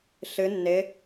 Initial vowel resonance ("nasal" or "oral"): oral